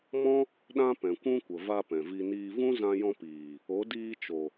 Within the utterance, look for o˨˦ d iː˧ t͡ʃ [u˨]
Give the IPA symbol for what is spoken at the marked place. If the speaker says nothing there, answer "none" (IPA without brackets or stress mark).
o˨